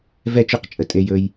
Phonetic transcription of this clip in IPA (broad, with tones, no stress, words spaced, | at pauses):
vɛ˦˨t͡ʃɵ˦˨qt͡ʃʼə˨ tʼe˧jɵ˧j